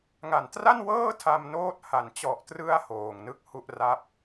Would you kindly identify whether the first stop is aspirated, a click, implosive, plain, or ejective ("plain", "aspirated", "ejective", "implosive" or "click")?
plain